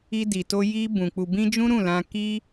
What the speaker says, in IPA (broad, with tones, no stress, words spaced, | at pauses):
i˧di˨to˧ ji˧ bũ˨ k͡pu˨bĩ˧ d͡ʒũ˦ɾũ˦˨lã˧ ki˦